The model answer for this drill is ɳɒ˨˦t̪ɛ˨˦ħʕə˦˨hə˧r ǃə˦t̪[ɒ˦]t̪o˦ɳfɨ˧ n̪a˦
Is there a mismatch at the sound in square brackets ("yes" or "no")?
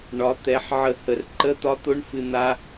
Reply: no